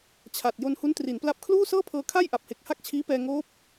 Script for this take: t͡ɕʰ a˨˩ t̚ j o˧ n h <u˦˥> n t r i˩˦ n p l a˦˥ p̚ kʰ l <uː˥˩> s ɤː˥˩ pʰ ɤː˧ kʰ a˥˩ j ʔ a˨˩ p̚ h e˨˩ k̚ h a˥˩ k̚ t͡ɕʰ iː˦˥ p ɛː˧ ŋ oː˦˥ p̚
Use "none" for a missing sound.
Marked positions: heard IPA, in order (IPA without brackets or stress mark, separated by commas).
u˦˥, uː˥˩